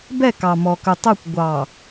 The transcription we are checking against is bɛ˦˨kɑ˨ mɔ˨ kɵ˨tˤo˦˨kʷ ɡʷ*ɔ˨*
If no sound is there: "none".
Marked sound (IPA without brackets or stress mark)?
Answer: ɑ˨